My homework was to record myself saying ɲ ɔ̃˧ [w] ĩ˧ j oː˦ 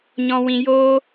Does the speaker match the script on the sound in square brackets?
yes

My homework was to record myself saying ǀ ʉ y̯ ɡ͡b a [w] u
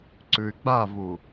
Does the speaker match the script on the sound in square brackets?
no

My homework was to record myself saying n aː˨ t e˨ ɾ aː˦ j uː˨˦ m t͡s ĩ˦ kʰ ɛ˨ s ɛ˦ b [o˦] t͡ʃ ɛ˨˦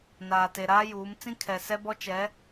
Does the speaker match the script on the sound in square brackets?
no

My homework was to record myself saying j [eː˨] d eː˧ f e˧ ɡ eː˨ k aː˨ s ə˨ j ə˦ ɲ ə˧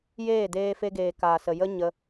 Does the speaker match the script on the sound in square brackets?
no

